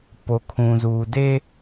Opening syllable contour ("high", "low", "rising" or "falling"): low